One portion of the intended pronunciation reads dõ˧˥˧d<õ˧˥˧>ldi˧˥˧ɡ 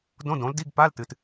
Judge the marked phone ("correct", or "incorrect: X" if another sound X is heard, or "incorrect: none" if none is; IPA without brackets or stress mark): incorrect: õ˨˥